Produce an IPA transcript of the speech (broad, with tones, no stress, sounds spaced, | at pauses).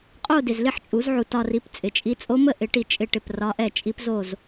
qʼ o˥˧ d ɪ˨ z l ɪ˥˧ ħ t͡ʃʼ u˨˩˦ z ʕ u˨ t ɒ˥˧ r i˧˥ p t͡sʼ ɪ˨ t͡ʃʼ i˧˥ t͡sʼ o˧˥ m ə˥˧ ʔ ɪ˨˩˦ ʈ i˨ t͡ʃʼ ɪ˥˩ ʈ ɪ˥˩ p r ɒ˧˥ ʔ ɛ˥˩ t͡ʃʼ i˧˥ p z o˥˩ z